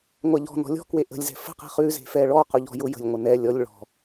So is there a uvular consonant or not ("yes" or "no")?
yes